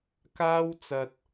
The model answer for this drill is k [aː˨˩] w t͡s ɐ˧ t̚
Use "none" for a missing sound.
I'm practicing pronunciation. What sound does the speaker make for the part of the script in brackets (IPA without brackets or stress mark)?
aː˥